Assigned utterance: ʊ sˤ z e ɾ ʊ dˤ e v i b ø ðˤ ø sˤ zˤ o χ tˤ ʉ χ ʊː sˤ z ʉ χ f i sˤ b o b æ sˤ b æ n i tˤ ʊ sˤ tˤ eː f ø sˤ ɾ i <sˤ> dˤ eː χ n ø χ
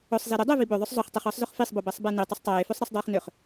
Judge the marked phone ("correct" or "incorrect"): correct